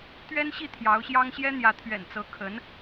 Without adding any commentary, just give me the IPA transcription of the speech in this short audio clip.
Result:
t̪ ɥ ɛ˥ n ɕ i˥˩ t̪ʰ j ɑ˧˥ ʊ̯ ɕ j ɑ˥ ŋ ɕ j ɛ˥ n̪ j ä˧˥ t̪ʰ ɥ ɛ̰˨˩ n t͡s ɤ˧˥ kʰ ə˧˥ n

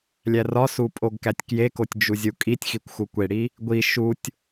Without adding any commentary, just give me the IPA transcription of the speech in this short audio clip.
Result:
lʲ æ r ɒ s u pʼ o ɡ k æ tʲ k j e k o tʲ d͡ʒ u zʲ u kʼ i tʲ x i kʷ x u kʷ e ɽ i | ɡʷ i ʃ u tʲ

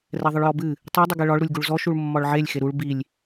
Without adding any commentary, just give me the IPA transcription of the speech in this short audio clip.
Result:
r ɛ ðˤ ɨ ɭ j ɔ b ɨ | tˤ i dˤ ɨ ɡ ɛ ɭ ɒ ɭ ɾ u lʲ ɡ u ɭ z ɔ ʃ u ɭ mː ɒ ɭ ʕ e lʲ x e ɾ u ɭ b i lʲ

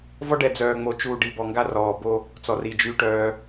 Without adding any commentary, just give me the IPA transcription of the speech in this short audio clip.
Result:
v ɔ˦ ɖ ɛ˨ d͡z œː˨ ŋ͡m o˨ t͡ʃ uː˨ ɖ i˨ b ɔ˨ ŋ ɡ a˦ r ɔː˨ b o˦ | t͡s ɔ˨ r i˨ d͡ʒ yː˦ ʈ œː˦

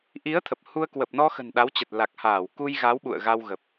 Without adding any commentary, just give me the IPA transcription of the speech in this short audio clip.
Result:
ʔ i˨˦ ə̯ t̪ʰ ə˨˩ p̚ h u˧ ə̯ k w ə˨˩ p̚ n ɔ˧ x ə̤˨˩ n ɗ a˨˦ w t͡ɕ ə˨˩ t̚ l a˨˩ k̚ h aː˧˩ w k u˧ j ɣ a˨˦ w ɓ ṵ˧˨ ə̯ ɣ a˧ w ɣ ə˨˩ p̚

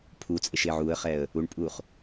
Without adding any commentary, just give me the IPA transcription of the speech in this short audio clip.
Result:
pʰ u t͡sʼ e ʃ e ʕ u ə̯ χ ɛ ə̯ | u ɳ pʼ u χ

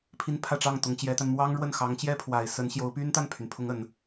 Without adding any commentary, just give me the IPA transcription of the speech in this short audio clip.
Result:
pʰ i˥˧ n pʰ ä˥˧ ʈ͡ʂ ɑ˥˩ ŋ t̪ ʊ˧˥ ŋ t͡ɕ j ɛ˧˥ t̪ a˧ n m w ɑ˥ ŋ ɻ w ə˥˩ n x ɑ˧˥ ŋ t͡ɕ j ɛ˥˩ pʰ w a˨˩ ɪ̯ s ə˧˥ n ɕ j o˧˥ ʊ̯ p y˥ n t̪ a˥˩ n pʰ y˩ n pʰ ʊ˧˥ ŋ ə˨˩˦ n

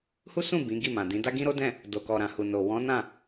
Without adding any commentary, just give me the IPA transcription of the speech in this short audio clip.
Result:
h u˦ s ũ˦˨ b ĩ˨˦ ɡ i˦˨ m ã˨ d ĩ˨˦ d a˦ ɡ ĩ˦ ɾ o˦ d ɛ̃˦˨ | d o˨ k ɔ˨ ɾ ã˨ h u˨ n o˨ w ɔ̃˨˦ n ã˦˨

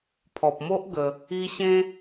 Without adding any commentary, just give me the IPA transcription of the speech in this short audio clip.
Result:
pʰ ɔ˨ p̚ m o˦ ʔ ɡ ə˧ | i˧ ɕ ẽ˦

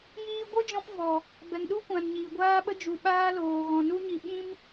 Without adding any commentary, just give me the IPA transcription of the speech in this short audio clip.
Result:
j iː˧ ɡʷ ɨ˦ d͡ʒ ɔ̃˧ p v ɔ˨ | b ɛ˨ ŋ ɗ u˦ kʷ ã˨ n ɲ iː˨ ɡʷ aː˧ ɓ ə˧ d͡ʒ u˨ ɓ aː˦ l oː˨ ɣ ɔ̃˨ n u˧ ɲ i˨ ɓ ĩ˦ m

